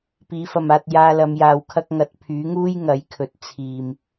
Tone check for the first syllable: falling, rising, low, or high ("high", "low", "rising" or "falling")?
rising